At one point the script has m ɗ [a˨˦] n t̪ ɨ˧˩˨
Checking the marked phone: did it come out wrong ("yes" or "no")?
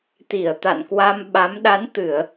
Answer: no